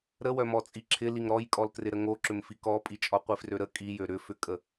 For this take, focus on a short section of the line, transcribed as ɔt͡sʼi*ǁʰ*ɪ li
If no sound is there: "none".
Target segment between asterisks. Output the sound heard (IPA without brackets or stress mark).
ǁʰ